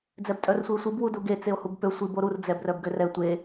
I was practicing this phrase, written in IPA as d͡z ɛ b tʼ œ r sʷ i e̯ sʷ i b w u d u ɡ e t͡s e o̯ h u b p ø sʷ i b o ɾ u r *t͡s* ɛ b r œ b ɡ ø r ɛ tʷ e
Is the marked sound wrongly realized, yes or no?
yes